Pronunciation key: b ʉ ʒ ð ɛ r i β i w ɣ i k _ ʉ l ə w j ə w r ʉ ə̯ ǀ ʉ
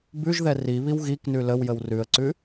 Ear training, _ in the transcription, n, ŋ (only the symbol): n